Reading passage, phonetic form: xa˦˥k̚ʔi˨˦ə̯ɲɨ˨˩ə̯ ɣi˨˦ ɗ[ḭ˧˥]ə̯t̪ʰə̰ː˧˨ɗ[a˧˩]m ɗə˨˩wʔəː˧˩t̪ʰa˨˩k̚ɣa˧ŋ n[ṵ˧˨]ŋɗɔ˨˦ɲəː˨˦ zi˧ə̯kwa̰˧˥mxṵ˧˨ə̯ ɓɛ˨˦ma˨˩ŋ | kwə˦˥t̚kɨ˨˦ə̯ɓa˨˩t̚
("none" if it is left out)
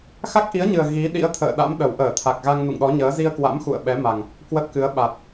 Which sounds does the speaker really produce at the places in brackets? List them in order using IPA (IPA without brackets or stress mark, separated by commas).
ḭ˧˥, a̰˧˥, ṵ˧˨